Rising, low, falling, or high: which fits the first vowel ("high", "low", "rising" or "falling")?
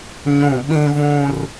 falling